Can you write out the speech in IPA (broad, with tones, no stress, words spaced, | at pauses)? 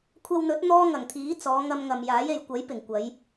kʷʰɐ˧wn̪ɵ˨˥t̚ n̪ɔː˥ŋɐ˨˩ŋt̪ʰiː˨˥ t͡sɔː˨˧ ŋɐ˧mŋɐ˨mjaː˨˥je˨j kʷɐ˨˥j pɪ˨˩ŋkʷɐ˨˧j